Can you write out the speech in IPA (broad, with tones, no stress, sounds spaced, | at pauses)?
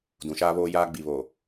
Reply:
d ũ˨ ʃ aː˦ β oː˦ j aː˦ ɡ͡b i˨ β oː˨